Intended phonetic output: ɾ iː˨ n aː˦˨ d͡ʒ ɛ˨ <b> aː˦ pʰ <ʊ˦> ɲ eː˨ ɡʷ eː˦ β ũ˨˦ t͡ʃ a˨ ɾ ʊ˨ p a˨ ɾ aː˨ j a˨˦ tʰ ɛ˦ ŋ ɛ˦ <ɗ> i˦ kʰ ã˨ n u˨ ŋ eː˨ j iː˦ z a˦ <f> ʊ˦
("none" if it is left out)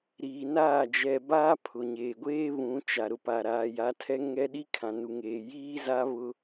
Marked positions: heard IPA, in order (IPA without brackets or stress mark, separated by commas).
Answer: b, ʊ˨, ɗ, β